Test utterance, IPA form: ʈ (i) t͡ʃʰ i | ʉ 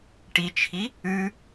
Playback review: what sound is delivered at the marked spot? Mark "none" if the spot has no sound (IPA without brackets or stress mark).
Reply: i